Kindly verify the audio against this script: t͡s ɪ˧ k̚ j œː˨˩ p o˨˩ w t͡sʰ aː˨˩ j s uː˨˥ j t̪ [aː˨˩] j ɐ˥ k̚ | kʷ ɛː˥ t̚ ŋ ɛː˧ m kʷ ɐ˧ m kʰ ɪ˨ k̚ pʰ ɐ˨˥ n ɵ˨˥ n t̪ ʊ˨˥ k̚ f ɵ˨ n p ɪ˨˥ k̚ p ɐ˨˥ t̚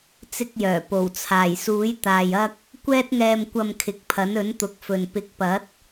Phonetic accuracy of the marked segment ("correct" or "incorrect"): incorrect